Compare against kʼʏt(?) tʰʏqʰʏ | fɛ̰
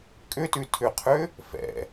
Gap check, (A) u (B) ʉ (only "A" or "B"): B